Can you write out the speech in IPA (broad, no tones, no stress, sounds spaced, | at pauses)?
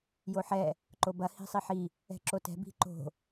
j o ħ ɛ | ǃ o b ɐ h i̤ sˤ i ħ i | ɛ̤ ǁ o t ɛ̤ b i̤ ǃ o̤